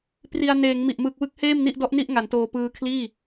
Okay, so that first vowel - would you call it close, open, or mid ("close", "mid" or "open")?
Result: close